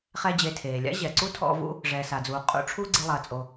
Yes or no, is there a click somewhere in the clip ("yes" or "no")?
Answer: yes